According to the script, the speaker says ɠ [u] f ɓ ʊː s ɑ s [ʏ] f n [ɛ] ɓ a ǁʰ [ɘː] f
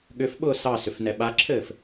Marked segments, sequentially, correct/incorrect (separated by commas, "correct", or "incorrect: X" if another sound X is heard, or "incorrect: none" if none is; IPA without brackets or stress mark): incorrect: ʏ, correct, correct, correct